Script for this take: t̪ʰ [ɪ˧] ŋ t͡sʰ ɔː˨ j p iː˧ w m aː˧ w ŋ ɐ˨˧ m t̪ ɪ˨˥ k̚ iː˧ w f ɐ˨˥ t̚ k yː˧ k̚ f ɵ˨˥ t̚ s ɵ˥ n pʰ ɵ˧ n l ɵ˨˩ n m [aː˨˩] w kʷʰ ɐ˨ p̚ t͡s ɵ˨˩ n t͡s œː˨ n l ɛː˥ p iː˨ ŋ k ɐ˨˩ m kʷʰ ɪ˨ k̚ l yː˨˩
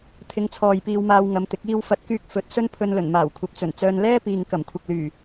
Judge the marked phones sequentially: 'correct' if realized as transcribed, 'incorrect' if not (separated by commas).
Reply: correct, correct